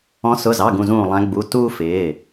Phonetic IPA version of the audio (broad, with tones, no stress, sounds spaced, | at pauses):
ɔ̃˨˦ s ʊ˩˧˩ z ɑ˩˧˩ ɡ ũ˧˩ z ũː˧˩ lˠ æ̃˨˦ ɡ͡b u˩˧˩ t uː˦ f ɪː˩˧˩